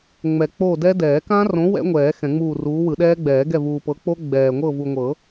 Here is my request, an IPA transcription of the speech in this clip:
ŋ͡mɛ˨ k͡po˦˨dɛ˦˥ dɛː˨˩˦kã˦˥rõ˨˥ wɛ̰˦˥ŋʷɛː˨˩˦ xɛ̃˨˩˦ŋ͡muː˦˨ruː˨˥ wɯ˨˩˦ɗɛː˦˥ɡ͡bɛː˨˩˦ɡɛ˦˨ vuː˨pɤ˨˥k͡po˦˥ ɡ͡bɛː˨ ŋʷɤ˦˨vu˨ŋʷɤ˨˩˦

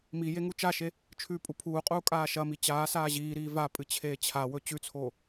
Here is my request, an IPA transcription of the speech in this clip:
mi jeŋut͡ʃaʃe | t͡ʃʰʉːpʼupʰuːqʼuː kʼaːʃɐmi t͡ɕaːsaː ʑiːɾiː va pʼɨt͡ɕʰeːt͡ɕʰawɵ t͡ɕʉt͡sʰoː

